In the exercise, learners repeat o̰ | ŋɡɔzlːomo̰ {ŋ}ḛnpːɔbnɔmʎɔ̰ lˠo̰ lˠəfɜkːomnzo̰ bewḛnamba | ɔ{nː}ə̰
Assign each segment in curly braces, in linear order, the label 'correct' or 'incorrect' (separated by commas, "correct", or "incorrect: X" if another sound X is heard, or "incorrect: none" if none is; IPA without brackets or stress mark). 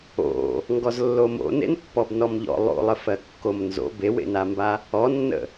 incorrect: n, correct